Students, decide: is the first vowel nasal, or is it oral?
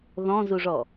nasal